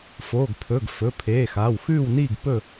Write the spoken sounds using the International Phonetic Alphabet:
foː˩˧˩ɡpʰɵ˩˧˩ɡ fɵ˩˧˩pʰeː˩˧˩ xaː˩˧˩wxʉː˥˨wniː˥˨ɡ pɵ˥˨

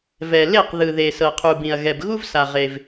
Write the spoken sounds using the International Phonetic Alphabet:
vɛ˩ le˥˩q ðɯ˩ðe˩ sɤ˩qʰu˩bĩ˩ɐ̯ ɣɛ˩bɣu˦vsa˩ʁe˩v

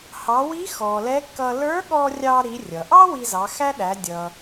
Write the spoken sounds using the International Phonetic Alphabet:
hɑ˩˧wi˧˥ xɔ˩lɛ˧˥kːʌ˧ lə˞˧˥ɠɔ˧ rʲɑ˧ɾi˩˧ rʲʌ˩ʔɑ˥ wi˧zɑ˩˧xæ˥ɗæ˩˧ dʲʌ˩

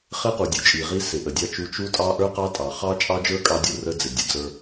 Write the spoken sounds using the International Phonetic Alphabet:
χɪ˦qu˨dʲu˨t͡ʃʼi˨ ʁi˦ sɪ˨ʔə˨dʲɑ˦t͡ʃu˦ t͡ʃu˦tʼɑ˦ ʔə˞˦ qɑ˦tʼɑ˨ χɑ˦t͡ʃʼɑ˦d͡ʒə˞˦ kʼɑ˦dʲu˦ rə˦d͡zɪ˨ dʲə˨d͡zə˞˦

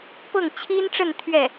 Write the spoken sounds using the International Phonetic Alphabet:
pɤ˥˩ŋ t͡ɕʰi˥nʈ͡ʂə˥˧n t̪ʰɥɛ˥˩

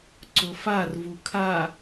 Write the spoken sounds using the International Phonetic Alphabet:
ǀʊfar vukʰa

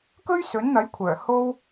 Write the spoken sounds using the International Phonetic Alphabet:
kɵ˥ɥsɵ˨˥nn̪ɐ˨˥jkʷʰœː˨˩ ho˥w

